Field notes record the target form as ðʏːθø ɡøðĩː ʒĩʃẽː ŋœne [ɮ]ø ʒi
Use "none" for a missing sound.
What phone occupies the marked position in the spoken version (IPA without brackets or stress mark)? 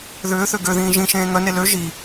l